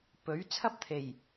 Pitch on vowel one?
rising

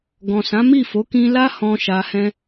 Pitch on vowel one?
low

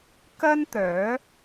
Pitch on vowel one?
high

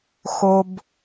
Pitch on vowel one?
low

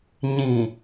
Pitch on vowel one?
low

